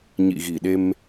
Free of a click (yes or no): yes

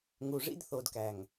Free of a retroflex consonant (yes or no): no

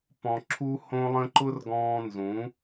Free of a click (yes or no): no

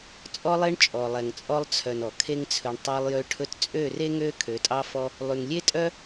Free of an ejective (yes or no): no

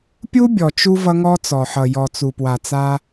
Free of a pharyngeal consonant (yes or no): no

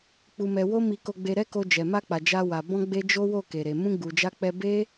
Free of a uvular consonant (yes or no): yes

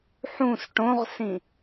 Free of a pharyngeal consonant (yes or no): no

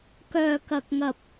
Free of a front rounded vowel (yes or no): no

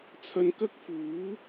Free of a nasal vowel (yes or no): yes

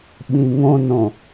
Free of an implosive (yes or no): no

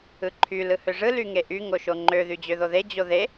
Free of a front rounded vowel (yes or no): no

